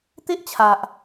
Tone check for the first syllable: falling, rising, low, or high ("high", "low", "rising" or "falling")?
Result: high